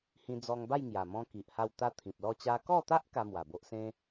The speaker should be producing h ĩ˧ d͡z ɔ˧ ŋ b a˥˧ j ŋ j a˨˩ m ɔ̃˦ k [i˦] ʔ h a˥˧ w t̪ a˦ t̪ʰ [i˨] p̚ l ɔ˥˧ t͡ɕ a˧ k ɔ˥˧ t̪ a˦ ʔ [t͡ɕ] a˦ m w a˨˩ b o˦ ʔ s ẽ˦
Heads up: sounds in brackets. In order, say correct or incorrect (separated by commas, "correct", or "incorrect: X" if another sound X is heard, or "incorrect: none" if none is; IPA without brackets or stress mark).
incorrect: i˨, incorrect: ĩ˨, incorrect: k